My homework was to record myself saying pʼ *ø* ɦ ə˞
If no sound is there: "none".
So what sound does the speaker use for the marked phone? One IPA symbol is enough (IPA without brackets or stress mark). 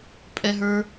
ɛ